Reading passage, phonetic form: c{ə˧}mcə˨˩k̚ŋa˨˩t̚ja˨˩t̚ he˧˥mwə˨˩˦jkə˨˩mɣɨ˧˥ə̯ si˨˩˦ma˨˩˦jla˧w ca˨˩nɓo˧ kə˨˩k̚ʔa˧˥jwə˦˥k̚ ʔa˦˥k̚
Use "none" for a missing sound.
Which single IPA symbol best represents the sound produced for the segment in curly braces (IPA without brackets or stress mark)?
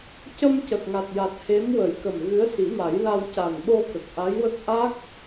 ə˧